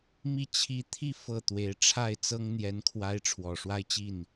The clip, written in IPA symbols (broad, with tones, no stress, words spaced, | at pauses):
mi˥˧ t͡ɕʰi˥˧ t̪ʰi˥˧ fɤ˥˩ t̪we˧˥ɪ̯ʈ͡ʂʰa˥˩ɪ̯t͡sɤ˥ŋ n̪jɛ˧˥nkʰwa˧˥ɪ̯ ʈ͡ʂʰwɔ˨˩ʂwa˥ɪ̯t͡ɕi˥˩n